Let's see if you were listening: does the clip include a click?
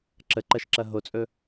yes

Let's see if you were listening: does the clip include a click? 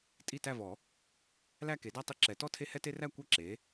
yes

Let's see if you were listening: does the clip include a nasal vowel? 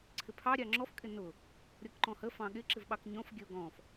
yes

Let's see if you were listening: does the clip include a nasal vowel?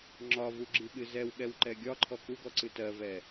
no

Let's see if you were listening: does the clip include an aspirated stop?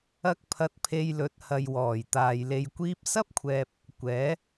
yes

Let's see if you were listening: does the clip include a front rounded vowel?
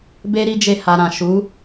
no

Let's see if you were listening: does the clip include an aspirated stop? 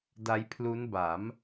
yes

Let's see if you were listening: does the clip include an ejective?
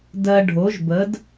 no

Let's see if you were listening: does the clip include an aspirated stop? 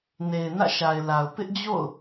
no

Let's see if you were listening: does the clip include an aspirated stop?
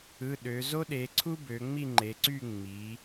yes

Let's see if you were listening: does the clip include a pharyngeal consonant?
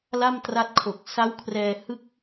no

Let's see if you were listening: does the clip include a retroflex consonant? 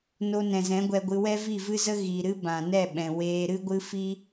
no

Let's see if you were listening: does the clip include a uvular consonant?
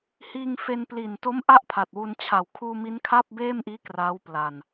no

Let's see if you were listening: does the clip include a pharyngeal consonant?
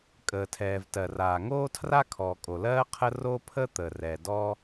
no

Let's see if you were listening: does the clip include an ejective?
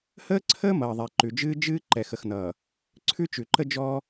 no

